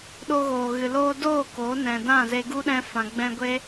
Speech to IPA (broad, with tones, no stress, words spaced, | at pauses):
ɗo˧ɣoː˨ɣɨ˨ loː˧doː˦˨ koː˨˦ nɛ̃˨dã˦˨ze˧ ɡu˦ɗɛ̃˧fã˨ ɡ͡bɛ̃˧ɡʷe˦